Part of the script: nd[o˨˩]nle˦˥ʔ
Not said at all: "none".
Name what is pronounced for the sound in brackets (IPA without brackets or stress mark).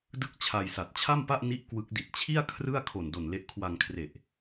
o˨˩